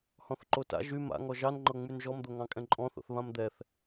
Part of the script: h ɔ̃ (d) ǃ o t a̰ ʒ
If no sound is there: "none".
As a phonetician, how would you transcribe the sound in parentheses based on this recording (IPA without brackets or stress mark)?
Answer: θ